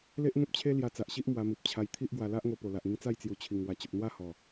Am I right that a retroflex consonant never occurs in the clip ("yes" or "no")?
yes